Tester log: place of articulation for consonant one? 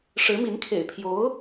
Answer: retroflex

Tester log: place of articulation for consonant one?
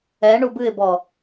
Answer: retroflex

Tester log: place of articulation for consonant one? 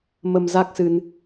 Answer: labial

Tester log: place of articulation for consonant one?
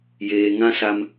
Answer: palatal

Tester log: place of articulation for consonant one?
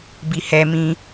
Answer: labial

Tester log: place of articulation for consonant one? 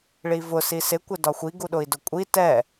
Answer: retroflex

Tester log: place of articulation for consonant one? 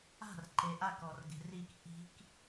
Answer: alveolar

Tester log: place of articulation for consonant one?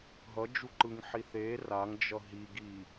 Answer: glottal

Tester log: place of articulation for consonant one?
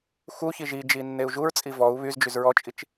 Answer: velar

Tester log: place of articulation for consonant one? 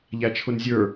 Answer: palatal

